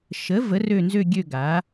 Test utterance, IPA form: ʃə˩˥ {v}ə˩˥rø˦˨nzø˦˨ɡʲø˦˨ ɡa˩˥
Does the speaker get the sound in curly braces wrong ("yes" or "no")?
no